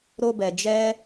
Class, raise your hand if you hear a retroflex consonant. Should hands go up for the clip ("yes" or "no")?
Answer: no